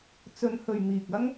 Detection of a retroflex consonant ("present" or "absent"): absent